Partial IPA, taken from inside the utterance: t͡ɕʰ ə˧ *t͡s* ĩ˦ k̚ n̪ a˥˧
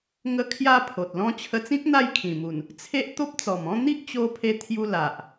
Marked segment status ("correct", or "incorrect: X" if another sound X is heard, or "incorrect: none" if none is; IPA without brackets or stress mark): correct